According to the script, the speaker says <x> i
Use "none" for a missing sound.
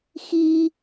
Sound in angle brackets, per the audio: x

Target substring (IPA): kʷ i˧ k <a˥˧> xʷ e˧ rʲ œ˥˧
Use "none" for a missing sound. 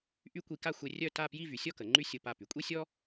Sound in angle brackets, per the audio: a˥˧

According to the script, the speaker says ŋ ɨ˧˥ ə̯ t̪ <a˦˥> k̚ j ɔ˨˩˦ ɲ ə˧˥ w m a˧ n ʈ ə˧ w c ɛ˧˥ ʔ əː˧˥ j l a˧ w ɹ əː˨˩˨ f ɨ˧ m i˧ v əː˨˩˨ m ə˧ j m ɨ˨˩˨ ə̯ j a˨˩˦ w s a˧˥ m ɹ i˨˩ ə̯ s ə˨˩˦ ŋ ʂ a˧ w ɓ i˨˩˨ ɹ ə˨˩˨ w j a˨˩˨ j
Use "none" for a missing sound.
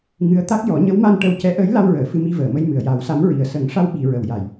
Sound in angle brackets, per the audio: a˦˥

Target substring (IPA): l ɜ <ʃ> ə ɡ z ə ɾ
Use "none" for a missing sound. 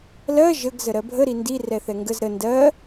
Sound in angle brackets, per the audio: ʒ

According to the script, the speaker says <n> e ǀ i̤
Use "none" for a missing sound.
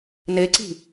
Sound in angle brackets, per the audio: n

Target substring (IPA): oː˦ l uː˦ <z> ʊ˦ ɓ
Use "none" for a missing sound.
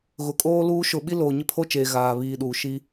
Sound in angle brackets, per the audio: ʃ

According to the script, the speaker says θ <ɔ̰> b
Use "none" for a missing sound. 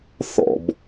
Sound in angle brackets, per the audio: ɔ̰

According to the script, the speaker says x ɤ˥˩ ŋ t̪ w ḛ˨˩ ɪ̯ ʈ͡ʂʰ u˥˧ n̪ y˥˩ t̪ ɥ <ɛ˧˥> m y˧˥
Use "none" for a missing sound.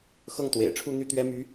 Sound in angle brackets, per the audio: ɛ˥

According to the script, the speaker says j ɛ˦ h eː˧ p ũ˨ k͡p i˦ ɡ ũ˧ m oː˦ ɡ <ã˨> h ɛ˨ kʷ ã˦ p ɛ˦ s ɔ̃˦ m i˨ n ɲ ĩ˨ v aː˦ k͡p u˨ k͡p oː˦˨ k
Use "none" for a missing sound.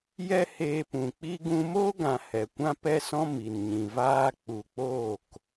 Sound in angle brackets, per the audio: ã˨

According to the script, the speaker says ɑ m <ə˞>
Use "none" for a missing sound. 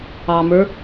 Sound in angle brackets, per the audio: ə˞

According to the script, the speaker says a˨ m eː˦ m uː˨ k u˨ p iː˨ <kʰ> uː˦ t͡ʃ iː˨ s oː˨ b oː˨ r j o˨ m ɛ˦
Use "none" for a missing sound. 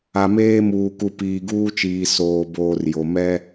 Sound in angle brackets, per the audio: ɡ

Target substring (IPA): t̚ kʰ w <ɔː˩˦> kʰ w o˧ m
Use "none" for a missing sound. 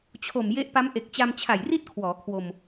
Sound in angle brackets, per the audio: ɔː˩˦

